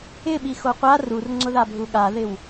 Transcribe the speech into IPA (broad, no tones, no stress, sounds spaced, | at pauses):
ɪ ɓ i x o qʷ a r u r ŋ͡ǀ ʊ ð a bʱ u ɠ a ð ɪ w